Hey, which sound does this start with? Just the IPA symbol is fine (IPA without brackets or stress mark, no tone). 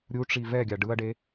ɾʲ